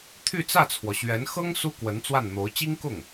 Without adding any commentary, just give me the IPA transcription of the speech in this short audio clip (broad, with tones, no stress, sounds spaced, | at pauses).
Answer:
t̪ʰ y˥˧ t͡s ä˥˩ t͡sʰ w ɔ˩ ɕ ɥ ɛ˧˥ n x ɤ˥ ŋ s u˥ k w ə˧˥ n t͡s w a˥˩ n n̪ o˧˥ ʊ̯ t͡ɕ i˥ ŋ k ʊ˥˩ ŋ